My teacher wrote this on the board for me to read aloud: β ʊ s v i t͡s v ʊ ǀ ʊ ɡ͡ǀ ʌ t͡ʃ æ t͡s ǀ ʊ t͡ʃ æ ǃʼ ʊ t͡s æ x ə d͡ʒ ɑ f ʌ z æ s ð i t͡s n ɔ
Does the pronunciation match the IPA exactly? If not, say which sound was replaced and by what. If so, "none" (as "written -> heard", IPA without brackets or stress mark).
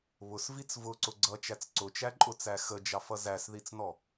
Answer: none